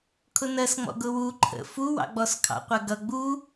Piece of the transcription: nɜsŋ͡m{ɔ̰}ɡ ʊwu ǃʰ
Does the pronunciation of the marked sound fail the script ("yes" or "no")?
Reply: no